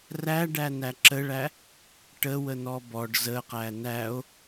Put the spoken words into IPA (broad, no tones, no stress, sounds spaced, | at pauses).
r æ ɖ æ n æ ǁ ə ɭ æ | ʈ ə w ə n ɔ b ɔ ɖ z ə q æ n æ o̯